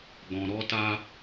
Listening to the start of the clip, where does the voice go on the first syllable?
low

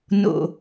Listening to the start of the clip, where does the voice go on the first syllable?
low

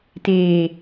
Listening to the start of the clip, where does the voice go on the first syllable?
low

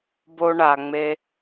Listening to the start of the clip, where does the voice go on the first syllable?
high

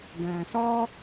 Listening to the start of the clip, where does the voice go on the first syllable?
low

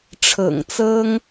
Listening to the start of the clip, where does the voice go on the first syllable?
low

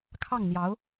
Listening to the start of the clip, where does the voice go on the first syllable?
falling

